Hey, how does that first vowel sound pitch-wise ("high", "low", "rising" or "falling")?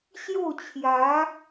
falling